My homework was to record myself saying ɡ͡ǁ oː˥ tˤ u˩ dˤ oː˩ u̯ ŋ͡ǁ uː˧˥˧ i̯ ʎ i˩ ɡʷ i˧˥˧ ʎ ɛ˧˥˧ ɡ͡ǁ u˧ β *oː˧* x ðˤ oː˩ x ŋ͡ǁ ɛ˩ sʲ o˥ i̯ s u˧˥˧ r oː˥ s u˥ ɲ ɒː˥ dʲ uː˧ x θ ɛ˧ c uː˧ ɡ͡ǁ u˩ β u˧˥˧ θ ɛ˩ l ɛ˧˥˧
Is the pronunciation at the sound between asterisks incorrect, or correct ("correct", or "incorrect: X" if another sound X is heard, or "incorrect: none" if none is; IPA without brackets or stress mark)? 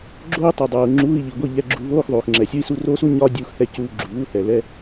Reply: incorrect: oː˧˥˧